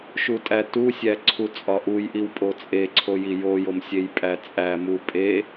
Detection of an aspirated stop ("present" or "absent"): present